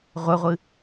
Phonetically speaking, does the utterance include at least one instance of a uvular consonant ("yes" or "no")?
yes